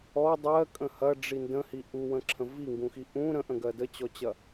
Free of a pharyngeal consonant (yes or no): yes